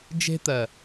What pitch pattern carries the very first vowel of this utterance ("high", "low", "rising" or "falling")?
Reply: high